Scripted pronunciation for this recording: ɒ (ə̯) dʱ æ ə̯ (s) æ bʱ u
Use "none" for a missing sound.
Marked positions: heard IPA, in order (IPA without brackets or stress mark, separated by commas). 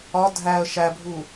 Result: none, ʃ